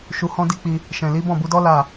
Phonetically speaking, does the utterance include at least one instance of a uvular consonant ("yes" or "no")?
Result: no